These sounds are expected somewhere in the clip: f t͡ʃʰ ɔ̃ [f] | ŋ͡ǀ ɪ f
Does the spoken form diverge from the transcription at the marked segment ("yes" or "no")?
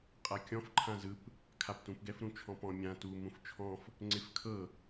no